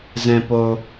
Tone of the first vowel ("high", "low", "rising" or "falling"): low